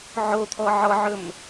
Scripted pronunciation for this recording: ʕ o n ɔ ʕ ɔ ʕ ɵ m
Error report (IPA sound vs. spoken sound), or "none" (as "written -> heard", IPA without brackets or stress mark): n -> t̪ʰ